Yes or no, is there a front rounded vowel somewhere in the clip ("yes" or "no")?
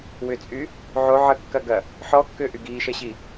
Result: yes